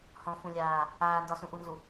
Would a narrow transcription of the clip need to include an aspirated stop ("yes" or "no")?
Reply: no